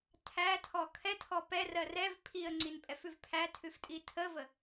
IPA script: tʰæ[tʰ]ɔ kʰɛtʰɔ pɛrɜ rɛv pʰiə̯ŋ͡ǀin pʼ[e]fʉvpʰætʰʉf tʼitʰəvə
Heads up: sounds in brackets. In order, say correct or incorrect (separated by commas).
correct, incorrect